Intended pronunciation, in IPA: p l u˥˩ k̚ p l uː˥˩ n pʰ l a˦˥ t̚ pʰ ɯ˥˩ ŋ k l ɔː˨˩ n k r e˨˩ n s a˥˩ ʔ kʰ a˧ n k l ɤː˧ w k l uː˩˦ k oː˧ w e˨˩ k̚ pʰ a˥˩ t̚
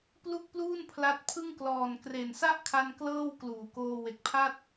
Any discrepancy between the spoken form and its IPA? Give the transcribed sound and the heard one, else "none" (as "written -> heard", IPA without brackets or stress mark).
ɤː˧ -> ɤː˥˩